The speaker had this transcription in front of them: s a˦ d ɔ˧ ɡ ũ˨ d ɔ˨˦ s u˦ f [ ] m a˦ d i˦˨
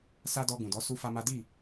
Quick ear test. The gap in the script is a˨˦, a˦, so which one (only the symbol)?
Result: a˦